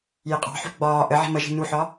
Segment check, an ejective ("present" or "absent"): present